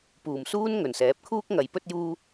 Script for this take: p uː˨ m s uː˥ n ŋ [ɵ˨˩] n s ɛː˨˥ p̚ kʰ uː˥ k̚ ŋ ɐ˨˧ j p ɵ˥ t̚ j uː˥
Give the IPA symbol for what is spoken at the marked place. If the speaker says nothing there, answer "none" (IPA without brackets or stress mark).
ɵ˨˩